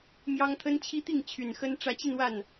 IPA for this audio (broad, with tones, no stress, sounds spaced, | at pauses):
m j ɑ˦ ŋ t̪ʰ ə˦ n t͡ɕʰ i˦ t̪ i˥˨ ŋ t͡ɕʰ y˨˩ n x ə˦ n ʈ͡ʂ ä˨˦ t͡ɕ i˧ n w a˥˨ n